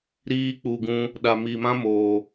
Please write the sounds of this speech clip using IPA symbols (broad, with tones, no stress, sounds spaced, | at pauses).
ɾ iː˦ k͡p u˨ ɡ ũ˧ | ɗ a˨ m i˨ m ã˦ m oː˨